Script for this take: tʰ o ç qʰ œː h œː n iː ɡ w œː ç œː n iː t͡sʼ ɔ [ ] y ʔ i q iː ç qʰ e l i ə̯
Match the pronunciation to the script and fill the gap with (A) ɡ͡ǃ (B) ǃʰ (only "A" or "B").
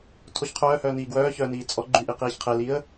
A